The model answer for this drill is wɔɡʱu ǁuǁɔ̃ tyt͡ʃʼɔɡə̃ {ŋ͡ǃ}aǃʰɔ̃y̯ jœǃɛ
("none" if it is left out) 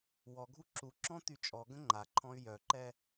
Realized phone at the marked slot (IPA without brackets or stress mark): ŋ͡ǃ